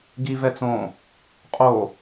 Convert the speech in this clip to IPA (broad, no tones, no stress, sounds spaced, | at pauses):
ɡ i v ɛ t͡s õ | qʼ o